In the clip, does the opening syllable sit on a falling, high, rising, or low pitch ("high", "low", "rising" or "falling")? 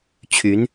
rising